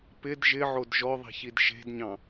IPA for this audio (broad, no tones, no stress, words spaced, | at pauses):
pɪd ʒɪʕod ʒɔðˤi̤çid ʃe̤dɲɑ̃